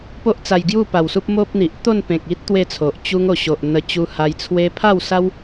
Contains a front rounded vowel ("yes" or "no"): no